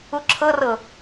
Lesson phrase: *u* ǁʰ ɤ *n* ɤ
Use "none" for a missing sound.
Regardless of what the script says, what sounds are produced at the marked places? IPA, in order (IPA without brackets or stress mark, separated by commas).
u, r